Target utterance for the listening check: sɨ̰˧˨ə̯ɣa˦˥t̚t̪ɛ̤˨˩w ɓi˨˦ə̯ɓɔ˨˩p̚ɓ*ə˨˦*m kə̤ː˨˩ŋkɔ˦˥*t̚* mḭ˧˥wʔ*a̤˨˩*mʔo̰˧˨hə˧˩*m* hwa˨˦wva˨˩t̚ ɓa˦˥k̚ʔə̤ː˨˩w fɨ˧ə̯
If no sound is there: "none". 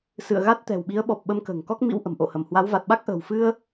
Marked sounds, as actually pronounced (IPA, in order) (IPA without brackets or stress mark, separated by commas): ə˨˦, k̚, ə̤˨˩, m